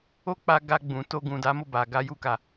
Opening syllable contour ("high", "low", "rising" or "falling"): high